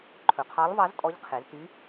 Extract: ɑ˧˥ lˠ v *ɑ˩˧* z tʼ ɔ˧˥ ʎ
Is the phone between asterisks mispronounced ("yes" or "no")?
yes